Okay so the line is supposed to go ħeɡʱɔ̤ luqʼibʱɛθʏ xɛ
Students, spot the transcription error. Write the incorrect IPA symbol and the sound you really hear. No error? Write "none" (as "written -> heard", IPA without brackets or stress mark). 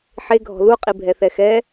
ʏ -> ɛ